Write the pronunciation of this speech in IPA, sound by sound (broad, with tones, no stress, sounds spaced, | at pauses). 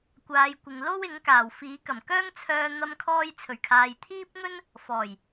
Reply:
kʷ aː˨˧ j kʷ ɪ˨ ŋ l o˥ w ɪ˨˥ ŋ k aː˨˩ w f iː˨˥ k ɐ˨˩ m k œː˥ ŋ t͡sʰ œː˧ n̪ ɐ˧ m kʰ ɔː˧ j t͡sʰ ɵ˨˩ ɥ kʰ aː˨ j t̪ʰ iː˥ p̚ ŋ ɵ˥ n | f ɔː˨˩ j